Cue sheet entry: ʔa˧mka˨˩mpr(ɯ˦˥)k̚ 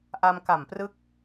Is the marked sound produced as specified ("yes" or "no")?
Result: yes